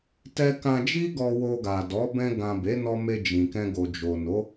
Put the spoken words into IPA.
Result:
t ɛ˧ k ã˧ d͡ʒ i˦ ɡ ɔ˧ w o˧ ɡ a˨ d ɔ˨˦ b ɛ̃˧ ɡ ã˨ b e˨˦ n ɔ˦ m e˧ d͡ʒ ĩ˨ k ɛ̃˧ ɡ o˨ d͡ʒ o˨ n o˨˦

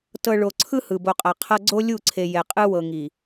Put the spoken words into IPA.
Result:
t ɤ˨ ɭ o˨ ǀʰ ɯ˦ h ɯ˨ b o˨ qʼ a˨ qʰ ɤ˦ ɡ͡ǀ o˦ lʲ u˦˨ ǀʰ e˨ j ɛ˨ qʼ ɯ˦ w ɤ˨ ŋ i˨

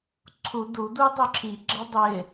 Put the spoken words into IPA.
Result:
ǀʰ u d u d u dˤ ʊ ǁʰ i ɡ͡ǁ ʌ dˤ ɪ

